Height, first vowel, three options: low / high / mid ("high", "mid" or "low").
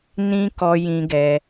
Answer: high